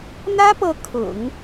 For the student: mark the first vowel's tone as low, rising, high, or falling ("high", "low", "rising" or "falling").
high